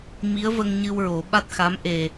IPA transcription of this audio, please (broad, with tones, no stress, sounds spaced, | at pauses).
m i˧˥ ə̯ v ə˧ ŋ ɲ ɨ˧ w ɹ o˨˩˦ ɓ a˦˥ t̚ x a˧˥ m ʔ e˨˩